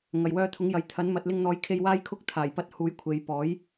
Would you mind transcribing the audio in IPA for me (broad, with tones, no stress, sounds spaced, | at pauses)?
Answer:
ŋ ɐ˨˩ j w œː˧ t̪ʰ ʊ˨˥ ŋ j ɐ˨ j t̪ʰ ɐ˨˥ n m ɐ˨ t̚ l ɪ˧ ŋ n̪ ɔː˨˥ j kʰ e˧ j w aː˥ j kʰ ʊ˥ k̚ t̪ʰ aː˨˩ j p ɐ˧ t̚ h uː˨˥ j kʷʰ e˨˧ j p ɔː˨˥ j